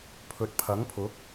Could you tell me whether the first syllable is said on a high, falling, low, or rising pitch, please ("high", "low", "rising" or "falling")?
low